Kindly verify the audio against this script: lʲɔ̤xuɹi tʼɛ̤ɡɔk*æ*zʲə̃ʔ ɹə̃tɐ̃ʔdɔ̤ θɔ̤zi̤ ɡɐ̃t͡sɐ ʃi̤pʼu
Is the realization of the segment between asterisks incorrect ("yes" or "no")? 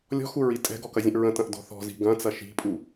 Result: yes